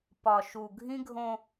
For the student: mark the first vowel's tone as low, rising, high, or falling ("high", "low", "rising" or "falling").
low